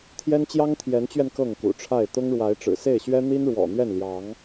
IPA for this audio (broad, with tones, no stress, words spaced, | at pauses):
t̪ʰjɛ˦nt͡ɕjɑ˦ŋt̪ʰjɛ˨˦nt͡ɕɥɛ˧n kɤ˥˨ŋkṵ˨˩ʈ͡ʂʰa˥˨ɪ̯ t̪ʊ˦ŋ ɻwa˨˦ɪ̯ʈ͡ʂɻ̩˨˩se˥˨ɪ̯ɕɥɛ˦ n̪i˦nɻwɔ̰˨˩n̪ɥɛ˥˨n ljɑ˨˦ŋ